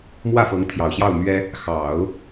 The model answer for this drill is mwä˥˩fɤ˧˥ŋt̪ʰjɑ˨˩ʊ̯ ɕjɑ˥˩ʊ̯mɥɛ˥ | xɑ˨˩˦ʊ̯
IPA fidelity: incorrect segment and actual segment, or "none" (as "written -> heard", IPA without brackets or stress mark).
none